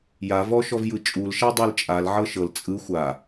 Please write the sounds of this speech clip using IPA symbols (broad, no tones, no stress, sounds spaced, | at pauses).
j a v ɔ ʃ ɔ v j ɯ t͡ʃʼ u l ʃ a dˤ ɯ l t͡ʃʼ a l ʕ ɤ ʃ ɤ l t͡sʼ ɯ xʷ a